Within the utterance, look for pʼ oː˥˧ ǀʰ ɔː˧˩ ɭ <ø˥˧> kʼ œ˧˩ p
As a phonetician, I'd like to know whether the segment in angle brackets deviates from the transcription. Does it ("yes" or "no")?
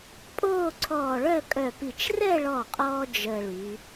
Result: yes